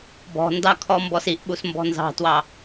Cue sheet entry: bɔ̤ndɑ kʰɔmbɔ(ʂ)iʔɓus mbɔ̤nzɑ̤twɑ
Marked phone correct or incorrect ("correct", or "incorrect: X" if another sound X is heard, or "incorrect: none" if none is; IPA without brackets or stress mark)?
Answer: incorrect: s